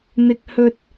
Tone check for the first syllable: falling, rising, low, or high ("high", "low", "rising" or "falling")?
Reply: high